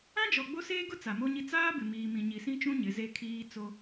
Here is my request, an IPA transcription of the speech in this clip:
ã˦ d͡ʒ ɔ˨ ɡ͡b o˦ s eː˦ ɡ ʊ˦ t͡s a˨ m o˦ ɲ i˦ t͡s aː˦ b ɪ˨ m iː˨ m ĩ˨ ɲ i˨ s ĩ˦ t͡ʃ ũ˦ ɲ ɪ˨˦ z e˦ kʰ iː˦ t͡s o˦

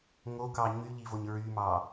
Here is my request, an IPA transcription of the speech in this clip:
ŋ o k ɑ ɲ y ʎ i v o ɲ ɹ y m ɑ

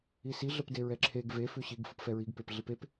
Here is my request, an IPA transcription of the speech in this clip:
i s i ɮ ə p d e ɹ ɛ ǁʰ e ɡ v e f ʉ ɕ i ɡ f ɯ p f ɛ ɹ i ɡ p e p ɮ i p e p

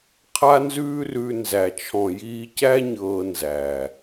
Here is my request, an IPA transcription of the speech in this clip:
qʰ a˦ n z ʉː˦ r ʉ˧ n z æ˨ t͡ʃʰ ɔ̃˨ j iː˧ c æ˦ ɲ ɤː˧ n z æ˨

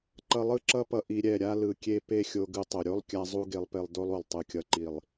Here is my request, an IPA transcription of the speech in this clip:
ǃ ʌ˧ lˠ ɯ˦ ǁ ʌ˦ p ʌ˧ ʔ i˧ ɾʲ ɛ˦˨ ɾʲ a˦ l ɯ˨ kʲ e˧ p e˦ xʲ o˧ ɡ ɯ˧ tˤ o˨ ɾʲ o˦ lˠ kʲ a˦ zˤ u˦ ɡ e˧ lˠ p e˧ lˠ d o˦ lˠ u˨ lˠ tˤ ɯ˨ kʲ ʌ˨ ǃ i˨ lˠ

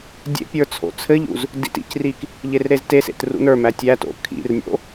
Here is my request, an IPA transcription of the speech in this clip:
dʲ ḛ pʲ ə˞ t͡sʰ o̰ t͡sʰ ɘ ʎ ṵ z | d ḭ t ḭ c r i k | ʎ e r ɾ e z t e s ḛ t r ṵ n ə˞ m æ tʲ æ t o̰ kʰ ḭ r nʲ o̰

